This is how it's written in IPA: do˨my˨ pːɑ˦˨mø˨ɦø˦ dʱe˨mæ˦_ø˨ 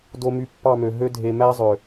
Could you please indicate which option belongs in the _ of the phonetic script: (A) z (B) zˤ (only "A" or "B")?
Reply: B